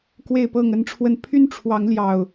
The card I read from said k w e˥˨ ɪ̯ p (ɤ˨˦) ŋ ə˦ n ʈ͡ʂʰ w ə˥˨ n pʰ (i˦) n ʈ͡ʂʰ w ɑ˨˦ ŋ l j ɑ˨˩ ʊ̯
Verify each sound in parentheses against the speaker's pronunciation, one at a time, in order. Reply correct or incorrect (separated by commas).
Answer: incorrect, incorrect